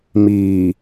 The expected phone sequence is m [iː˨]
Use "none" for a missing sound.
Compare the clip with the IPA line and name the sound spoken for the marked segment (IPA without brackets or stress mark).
iː˨